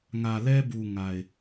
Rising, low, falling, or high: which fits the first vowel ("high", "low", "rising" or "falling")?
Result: low